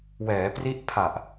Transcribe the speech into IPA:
w ɛː˩˦ p r i˦˥ ʔ pʰ a˨˩ ʔ

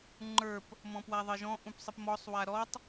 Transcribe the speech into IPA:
ŋ͡ǃ ə˞ p | m ɔ̃ p w a ðˤ ɘ ʒ ɔ̃ ʔ ũ p sˤ ɘ p m ɔ sˤ w a ɾ ɔ tˤ

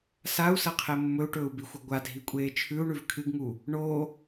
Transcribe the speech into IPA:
s a u̯ s ɐ qʰ e mː ɵ u̯ ʈ ɵː u̯ b i xʷ ɐ ɡʷ a dʱ i kʷʼ eː t͡ʃʰ ʉ u̯ ɳ ʉ v kʰ ɨ ɡ ŋ u | ɳ o

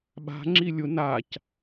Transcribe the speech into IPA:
ɓ a̤ ŋ͡ǁ i lʲ ʊ n a c

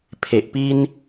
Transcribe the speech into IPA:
pʰ e˨ ʔ p i˧ n

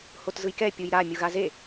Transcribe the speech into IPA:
h o t z ɯ j k ɛ pʲ u j ɾ a mʲ u ɣ a z e

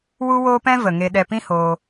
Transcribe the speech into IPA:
w u˧ w oː˧ p ɛ̃˧ v ə˨ ŋ e˧ ɗ ɛ˧ p ĩ˦ h oː˧

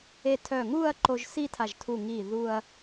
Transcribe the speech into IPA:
e˧ tʰ œ˧˩ ŋ u˥˧ ɐ̯ ǃ o˧ ʒ s i˥˧ tʰ a˧˩ ʒ tʰ u˧˩ ŋ i˧˩ ð u˧ ɐ̯

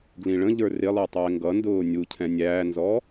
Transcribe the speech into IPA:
ɡ l ĩ ɭ ə̃ ʎ ə˞ r ɪ lˠ ə˞ tˤ ɪː ŋ ɡ ʌ n d ʊː nʲ u cʰ ɛ̃ nʲ æː n z ɔ

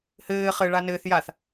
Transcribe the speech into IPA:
h ɘː χ ɘ ɭ a n ɘ θ j a θ

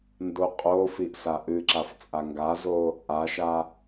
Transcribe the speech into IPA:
n d o qʼ o f i ʔ s a ʔ ɨ ǁ a f t͡sʼ a ŋ ɡ a z o | ʔ a ʃ a

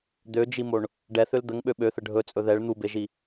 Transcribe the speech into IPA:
d̪ ø d͡ʒ i m o ɳ | ɖ ɛ θ ø l d̪ ə ŋ ɓ ø ɓ ø θ ə ɖʱ ɵ t͡sʼ ɵ ð ɛ ɭ n̪ u b e ʒ i

